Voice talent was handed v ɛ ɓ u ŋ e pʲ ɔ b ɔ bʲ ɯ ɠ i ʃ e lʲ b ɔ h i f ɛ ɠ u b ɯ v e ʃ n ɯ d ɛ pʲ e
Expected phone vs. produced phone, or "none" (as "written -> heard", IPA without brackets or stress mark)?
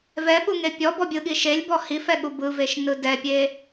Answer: none